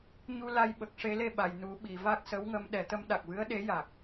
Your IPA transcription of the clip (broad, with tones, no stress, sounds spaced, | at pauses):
ɲ u˧ l a˧ j ɓ ə˨˩ k̚ ʂ e˧˥ l e˧ ɓ a˨˩˨ j n u˨˩˦ ɓ i˨˩˨ v a˦˥ k̚ s ə˧˥ w ŋ ə˧ m ɗ ɛ˨˩˦ t̪ ə˧˥ m ɗ a˨˩ k̚ v ɨ˧˥ ə̯ ɗ e˧˥ j a˨˩ k̚